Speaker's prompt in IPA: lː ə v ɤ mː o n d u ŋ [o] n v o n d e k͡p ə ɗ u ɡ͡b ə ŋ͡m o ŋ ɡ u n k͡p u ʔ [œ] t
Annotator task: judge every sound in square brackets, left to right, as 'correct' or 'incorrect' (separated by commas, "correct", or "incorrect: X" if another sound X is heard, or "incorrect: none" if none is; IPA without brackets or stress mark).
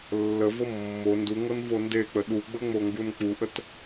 incorrect: ɤ, incorrect: ə